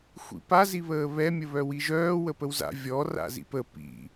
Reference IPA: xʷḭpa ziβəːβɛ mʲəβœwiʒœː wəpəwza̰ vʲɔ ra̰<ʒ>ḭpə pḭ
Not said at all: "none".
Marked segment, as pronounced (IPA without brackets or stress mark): z